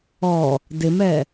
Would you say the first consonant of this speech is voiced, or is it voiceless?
voiced